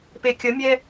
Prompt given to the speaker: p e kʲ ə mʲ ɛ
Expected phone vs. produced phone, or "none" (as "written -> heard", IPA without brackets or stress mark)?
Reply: none